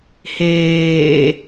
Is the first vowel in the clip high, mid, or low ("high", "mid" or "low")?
mid